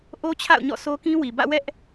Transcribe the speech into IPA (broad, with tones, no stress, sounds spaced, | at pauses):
ʔ o˦ t͡ɕʰ a̰˦˨ ʊ̯ ɲ ɔ̰˦˨ sʰ o˦ k ĩ˦ w i˨ b ä̰˦˨ w ɛ˦ ʔ